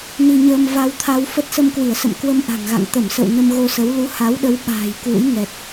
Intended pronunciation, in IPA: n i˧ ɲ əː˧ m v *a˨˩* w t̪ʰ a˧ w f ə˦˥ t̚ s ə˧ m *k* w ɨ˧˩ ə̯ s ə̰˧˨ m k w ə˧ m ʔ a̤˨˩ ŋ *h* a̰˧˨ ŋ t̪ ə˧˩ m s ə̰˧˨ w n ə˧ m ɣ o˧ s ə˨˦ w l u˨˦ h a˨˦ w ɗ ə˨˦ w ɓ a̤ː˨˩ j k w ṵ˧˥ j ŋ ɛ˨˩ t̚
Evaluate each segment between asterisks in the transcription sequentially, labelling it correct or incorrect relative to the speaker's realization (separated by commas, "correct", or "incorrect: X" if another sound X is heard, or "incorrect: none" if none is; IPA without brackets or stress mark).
incorrect: a˧, correct, incorrect: ɣ